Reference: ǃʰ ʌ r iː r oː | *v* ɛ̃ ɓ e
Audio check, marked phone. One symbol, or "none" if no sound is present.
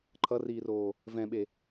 v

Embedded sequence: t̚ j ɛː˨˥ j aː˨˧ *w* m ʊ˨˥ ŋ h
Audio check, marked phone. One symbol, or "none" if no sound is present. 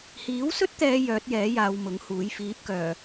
w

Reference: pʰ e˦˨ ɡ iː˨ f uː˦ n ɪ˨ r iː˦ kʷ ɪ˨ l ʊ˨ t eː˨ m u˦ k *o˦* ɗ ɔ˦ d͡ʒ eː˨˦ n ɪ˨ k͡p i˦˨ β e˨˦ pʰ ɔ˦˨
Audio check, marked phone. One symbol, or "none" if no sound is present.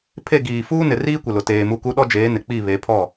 u˦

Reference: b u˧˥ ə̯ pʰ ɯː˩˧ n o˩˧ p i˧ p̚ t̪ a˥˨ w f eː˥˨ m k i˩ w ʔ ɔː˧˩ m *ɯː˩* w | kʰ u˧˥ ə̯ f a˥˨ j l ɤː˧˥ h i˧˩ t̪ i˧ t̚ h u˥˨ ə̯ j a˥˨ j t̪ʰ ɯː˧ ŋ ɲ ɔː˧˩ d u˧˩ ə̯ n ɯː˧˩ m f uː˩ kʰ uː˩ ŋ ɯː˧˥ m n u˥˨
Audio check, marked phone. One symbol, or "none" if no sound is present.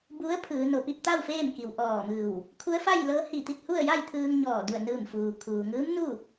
ɯː˧˩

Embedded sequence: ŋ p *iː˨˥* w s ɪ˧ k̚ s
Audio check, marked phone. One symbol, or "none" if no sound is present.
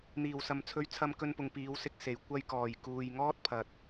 iː˨˥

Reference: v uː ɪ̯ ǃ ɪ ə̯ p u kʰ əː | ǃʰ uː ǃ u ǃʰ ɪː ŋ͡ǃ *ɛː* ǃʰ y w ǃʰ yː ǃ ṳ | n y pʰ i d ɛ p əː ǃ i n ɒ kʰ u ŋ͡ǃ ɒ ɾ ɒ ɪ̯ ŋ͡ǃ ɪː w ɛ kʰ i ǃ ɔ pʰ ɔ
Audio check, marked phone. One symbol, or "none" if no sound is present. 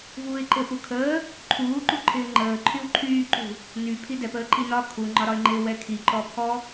əː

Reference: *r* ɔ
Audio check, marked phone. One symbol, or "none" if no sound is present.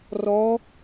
r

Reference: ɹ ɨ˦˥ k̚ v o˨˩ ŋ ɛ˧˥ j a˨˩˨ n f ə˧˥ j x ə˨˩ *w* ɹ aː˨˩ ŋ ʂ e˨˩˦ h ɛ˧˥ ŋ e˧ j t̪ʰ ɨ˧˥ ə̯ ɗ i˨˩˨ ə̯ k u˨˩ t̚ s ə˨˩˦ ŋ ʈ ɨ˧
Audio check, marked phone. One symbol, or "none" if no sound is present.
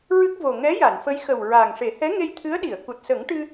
w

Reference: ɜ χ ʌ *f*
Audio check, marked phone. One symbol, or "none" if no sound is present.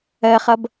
b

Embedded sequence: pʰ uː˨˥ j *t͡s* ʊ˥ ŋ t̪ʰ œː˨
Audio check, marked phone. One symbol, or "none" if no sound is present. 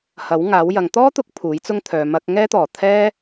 t͡s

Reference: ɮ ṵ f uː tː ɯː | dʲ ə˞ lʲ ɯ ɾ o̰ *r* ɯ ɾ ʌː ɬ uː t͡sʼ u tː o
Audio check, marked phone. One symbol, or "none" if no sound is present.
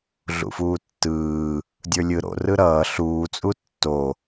r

